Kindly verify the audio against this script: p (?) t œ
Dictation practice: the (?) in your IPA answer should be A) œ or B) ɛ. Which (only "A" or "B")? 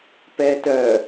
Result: B